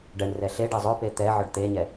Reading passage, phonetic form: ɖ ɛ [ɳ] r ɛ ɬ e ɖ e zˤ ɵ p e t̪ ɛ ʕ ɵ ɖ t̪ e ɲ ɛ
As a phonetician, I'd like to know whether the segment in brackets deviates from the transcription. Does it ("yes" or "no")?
no